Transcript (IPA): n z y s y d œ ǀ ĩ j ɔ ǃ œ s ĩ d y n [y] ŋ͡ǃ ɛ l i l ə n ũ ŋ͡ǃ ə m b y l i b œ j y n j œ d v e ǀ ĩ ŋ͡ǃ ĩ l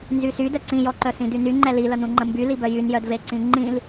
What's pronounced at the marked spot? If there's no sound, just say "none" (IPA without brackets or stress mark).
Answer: y